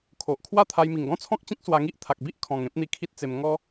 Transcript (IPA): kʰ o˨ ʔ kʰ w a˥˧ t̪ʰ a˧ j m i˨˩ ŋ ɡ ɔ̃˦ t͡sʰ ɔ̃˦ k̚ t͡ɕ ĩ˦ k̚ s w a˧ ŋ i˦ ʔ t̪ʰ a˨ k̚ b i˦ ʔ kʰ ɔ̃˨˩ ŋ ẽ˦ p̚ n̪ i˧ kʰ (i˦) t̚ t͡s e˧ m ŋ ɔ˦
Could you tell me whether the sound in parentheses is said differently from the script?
no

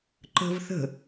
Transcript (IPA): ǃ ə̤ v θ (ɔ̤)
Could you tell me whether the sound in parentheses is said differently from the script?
yes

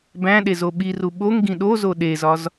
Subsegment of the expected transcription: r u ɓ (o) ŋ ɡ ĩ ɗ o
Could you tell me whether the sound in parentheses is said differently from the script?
no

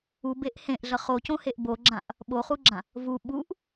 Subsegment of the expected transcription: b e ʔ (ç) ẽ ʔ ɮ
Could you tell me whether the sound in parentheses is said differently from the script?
yes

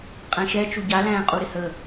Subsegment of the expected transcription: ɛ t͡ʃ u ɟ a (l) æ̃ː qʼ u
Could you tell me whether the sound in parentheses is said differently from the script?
no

